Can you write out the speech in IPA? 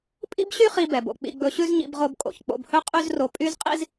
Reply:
pʼ ḭ˥ b ɕ y˥ χ i˧ b ɛ˩ b o̰˩ k͡p ḭ˧ ɡ͡b ɵ˧ ɕ ʉ˥ z ɲ ḭ˧ b ʁ o˧ b kʼ o̰˩ ç k͡p o̰˧ b h ɵ˥ qʼ y˥ z r o˧ pʼ y˥ z qʼ ḭ˥ z

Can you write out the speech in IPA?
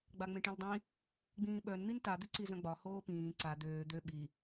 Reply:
ɡ͡b a ŋ͡m ẽ ʈ ĩ l dˤ ĩ | ɡ͡b ĩː ɓ œ n n̪ i n t a d̪ ʏ ǀ i z œ̃ ɡ͡b ɒ h oː p ĩː ǀ a d̪ øː d̪ ø ɓ i

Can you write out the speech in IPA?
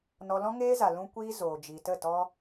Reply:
n ɔ˧ l ɔ̃˦ ŋ eː˦ z a˨ l ũ˦ kʷ iː˦ z oː˨ d͡ʒ i˨ t ə˦˨ t ɔ˦

